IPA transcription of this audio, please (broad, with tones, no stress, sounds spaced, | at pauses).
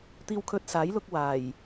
t̪ iː˧ w kʰ ɵ˧ t̚ s aː˨˥ j l ʊ˧ k̚ w aː˨˩ j